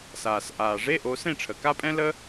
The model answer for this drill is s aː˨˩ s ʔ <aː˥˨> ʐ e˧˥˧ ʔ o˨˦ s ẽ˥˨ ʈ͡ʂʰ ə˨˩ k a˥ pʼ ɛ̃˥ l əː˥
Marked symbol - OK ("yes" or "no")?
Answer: no